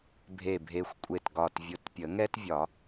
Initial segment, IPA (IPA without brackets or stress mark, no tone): bʱ